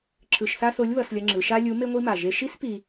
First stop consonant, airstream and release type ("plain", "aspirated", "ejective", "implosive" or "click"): click